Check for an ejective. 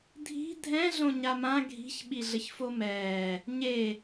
absent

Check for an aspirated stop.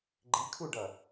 present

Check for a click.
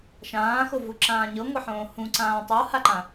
present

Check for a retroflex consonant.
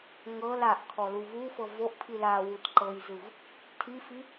absent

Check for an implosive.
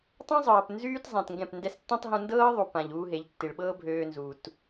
present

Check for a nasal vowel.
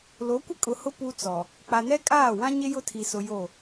present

